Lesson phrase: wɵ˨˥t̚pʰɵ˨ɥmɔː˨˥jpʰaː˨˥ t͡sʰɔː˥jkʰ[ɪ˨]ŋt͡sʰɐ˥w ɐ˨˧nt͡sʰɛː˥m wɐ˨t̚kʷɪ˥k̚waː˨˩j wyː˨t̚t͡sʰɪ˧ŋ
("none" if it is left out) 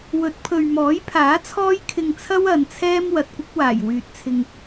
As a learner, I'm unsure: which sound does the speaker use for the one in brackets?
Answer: ɪ˧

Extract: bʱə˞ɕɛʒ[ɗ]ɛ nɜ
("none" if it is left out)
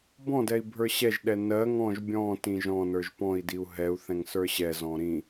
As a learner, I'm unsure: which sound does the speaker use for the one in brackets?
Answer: ɗ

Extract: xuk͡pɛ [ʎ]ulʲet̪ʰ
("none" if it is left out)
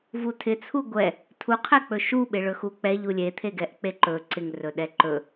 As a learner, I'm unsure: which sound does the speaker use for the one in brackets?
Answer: ʎ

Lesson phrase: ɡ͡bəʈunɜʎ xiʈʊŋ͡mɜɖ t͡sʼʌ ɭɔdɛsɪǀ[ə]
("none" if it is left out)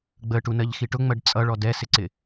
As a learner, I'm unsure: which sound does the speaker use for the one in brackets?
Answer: ɪ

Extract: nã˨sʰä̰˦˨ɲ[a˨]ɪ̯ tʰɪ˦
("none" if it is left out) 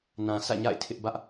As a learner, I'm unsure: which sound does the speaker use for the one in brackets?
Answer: a̰˦˨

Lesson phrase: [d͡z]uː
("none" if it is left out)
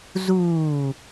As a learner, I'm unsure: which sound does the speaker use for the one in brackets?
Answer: z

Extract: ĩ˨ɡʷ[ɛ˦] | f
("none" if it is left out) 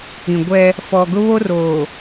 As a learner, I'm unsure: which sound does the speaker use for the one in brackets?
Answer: ɛ˦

